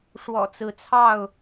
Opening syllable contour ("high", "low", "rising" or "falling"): low